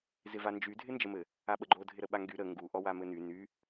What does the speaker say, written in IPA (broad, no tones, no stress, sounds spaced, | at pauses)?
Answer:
z ɪ v a n d͡ʒ y dʱ ɪ n d͡ʒ ə m ɘ | a ɓ ə ɡ͡ǃ o dʱ ɪ ɾ ə ɓ a ŋ ɡ y ɾ ə ŋ ɡ u ʔ ɔ w a m ɘ n y n y